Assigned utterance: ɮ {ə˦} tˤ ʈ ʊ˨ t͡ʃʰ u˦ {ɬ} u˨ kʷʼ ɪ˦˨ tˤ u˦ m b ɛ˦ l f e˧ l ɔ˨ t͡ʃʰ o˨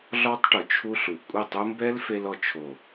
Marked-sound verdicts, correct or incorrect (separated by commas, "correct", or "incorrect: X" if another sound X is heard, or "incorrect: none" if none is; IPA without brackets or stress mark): incorrect: ɔ˦, correct